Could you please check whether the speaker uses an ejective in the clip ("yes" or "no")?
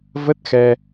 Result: no